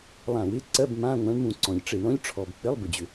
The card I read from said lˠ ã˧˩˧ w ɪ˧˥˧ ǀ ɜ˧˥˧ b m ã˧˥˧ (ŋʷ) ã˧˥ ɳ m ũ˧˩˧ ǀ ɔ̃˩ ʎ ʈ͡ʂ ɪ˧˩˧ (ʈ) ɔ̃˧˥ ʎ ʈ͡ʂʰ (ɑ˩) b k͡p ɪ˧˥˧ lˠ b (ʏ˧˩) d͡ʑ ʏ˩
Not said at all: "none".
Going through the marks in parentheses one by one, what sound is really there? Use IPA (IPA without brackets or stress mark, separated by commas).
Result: ŋʷ, ɳ, ɔ˩, ʏ˩